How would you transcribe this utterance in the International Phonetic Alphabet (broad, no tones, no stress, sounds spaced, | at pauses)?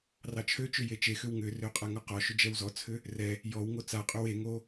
r ɑ t͡ʃʰ ø t͡ʃ ʏ j e t͡ʃ e x ʏ w ŋ ʏ r ø qʼ a ŋ ɔ q ɔ ʃ ʏ d͡ʒ ɛ w z ɔ t͡sʰ ʏ | r ɛ | j ɔ w ŋ o t͡s a qʼ ʏ w e ŋ o